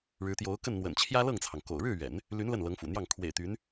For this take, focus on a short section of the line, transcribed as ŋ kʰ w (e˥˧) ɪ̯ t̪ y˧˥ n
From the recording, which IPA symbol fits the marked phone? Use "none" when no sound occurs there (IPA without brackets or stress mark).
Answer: ḛ˨˩